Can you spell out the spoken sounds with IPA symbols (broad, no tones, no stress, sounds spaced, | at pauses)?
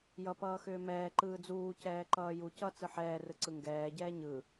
j ʌ p ʌː x ʏː m ɛː ǃ ɯː d͡z uː c ɛː ǃ ʌː j u c ʌ t͡s ɯ ħ ɛː r ɯ ǀ ɯ ŋ ɡ ɛː ɟ ɛː ɲ ɯ